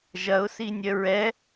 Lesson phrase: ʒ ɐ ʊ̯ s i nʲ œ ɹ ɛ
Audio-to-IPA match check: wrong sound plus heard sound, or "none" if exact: none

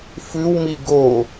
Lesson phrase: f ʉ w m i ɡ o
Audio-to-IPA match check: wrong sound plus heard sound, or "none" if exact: none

